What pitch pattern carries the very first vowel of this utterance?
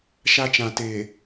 high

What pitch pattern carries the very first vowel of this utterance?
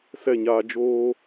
falling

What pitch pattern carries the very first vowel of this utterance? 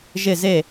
falling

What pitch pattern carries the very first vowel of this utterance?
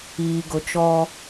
low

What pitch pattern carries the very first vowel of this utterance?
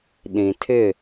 low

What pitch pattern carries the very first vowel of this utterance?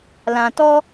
low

